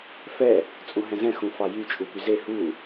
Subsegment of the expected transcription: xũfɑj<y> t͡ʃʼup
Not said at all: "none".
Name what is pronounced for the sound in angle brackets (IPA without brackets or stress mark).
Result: y